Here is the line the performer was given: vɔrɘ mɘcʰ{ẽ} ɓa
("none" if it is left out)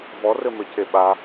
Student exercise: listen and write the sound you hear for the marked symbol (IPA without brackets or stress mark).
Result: e